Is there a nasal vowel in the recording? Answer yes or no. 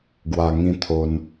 yes